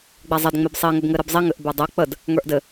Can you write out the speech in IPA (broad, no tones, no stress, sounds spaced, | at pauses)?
ɡ͡b ɛ zˤ e d ŋ͡m e b sˤ i ŋ ɘ b ŋ ɘ ɾ ɘ b zˤ i ŋ ɘ ʔ b e dˤ e k͡p ə d | ŋ ə˞ ʔ d ɘ